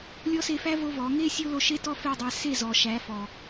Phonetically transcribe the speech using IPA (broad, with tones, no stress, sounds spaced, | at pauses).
lʲ ɔ˦ s e˧ f æ˦ v o˦ v ɔ˨˦ ŋ e˦ sʲ o˦ l o˧ ʃ e˦ t ɔ˦ f e˦˨ dˤ æ˧ s e˦˨ z ɔ˨ ʃ æ˨˦ f ɔ˨